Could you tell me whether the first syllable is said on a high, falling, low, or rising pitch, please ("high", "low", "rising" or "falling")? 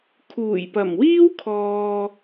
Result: low